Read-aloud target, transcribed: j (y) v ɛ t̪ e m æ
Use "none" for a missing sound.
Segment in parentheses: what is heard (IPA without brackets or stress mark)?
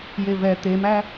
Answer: e